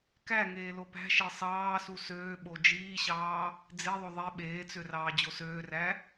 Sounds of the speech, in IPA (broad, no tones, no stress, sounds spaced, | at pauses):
k æ ŋ eː l o p æ̤ ʃ e sˤ ɑː s u s øː ɓ o d͡ʒ iː ɕ ɑː | d͡z e ðˤ o ðˤ e ɓ eː t͡s ø r ɑː d͡ʑ o s øː r æ